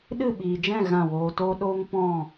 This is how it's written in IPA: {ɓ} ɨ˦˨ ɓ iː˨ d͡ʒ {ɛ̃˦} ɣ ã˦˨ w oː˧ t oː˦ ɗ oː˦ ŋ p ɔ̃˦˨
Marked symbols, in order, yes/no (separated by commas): no, no